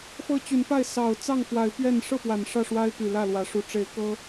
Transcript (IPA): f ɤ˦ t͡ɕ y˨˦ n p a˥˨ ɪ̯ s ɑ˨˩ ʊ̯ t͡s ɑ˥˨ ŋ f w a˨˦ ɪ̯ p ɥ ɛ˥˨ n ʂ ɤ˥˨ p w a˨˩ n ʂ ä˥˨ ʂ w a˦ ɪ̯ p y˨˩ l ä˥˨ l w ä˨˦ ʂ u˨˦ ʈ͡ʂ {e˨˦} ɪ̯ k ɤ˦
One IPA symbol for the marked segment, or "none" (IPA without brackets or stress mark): e˨˦